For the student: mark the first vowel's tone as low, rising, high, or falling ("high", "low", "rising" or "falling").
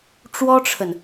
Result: high